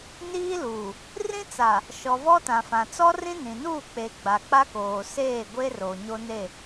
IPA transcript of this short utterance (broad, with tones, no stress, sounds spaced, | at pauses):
n iː˦ l uː˨ | r ĩ˦ t͡s a˨ | ʃ ɔ˨ v ɔ˦ t ã˨ f ã˨ t͡s ɔ˦ r ĩ˦ n ĩ˨ n uː˦˨ k͡p e˨ ɡ͡b a˨ k͡p a˦ k oː˨ s eː˦˨ ɡʷ e˦ r o˨ ɲ o˦ n e˦˨